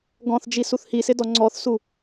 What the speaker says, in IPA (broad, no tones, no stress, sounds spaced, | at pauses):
ɡ ɔ̃ θ d͡ʒ i s u θ h i s ɪ d ɔ ŋ͡ǀ ɔ θ s u